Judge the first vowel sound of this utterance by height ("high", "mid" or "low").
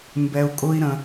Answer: mid